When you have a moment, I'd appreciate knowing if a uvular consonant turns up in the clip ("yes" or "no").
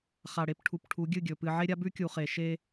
yes